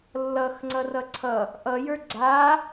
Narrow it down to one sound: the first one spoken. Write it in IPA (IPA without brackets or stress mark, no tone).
lː